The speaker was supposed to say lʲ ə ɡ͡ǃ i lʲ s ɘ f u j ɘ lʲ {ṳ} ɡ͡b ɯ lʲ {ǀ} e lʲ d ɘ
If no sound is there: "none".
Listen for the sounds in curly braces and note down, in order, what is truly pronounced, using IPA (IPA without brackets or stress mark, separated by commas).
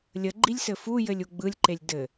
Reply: u, ǃ